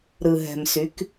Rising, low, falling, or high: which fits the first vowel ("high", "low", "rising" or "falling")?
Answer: low